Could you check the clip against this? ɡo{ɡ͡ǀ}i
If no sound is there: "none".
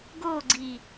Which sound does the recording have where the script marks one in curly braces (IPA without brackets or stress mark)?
ɡ͡ǀ